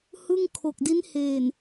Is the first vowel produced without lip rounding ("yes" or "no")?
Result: yes